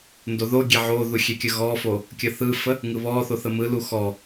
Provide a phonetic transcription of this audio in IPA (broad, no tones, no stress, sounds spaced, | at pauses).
n d o ð o ɡʲ e ʕ o ð u xʲ e kʲ ə ɣ ɔ f o | kʲ ə θ ɯ f ə | ŋ ɯ β ɔ θ o θ ə m ɯ l u x ɔ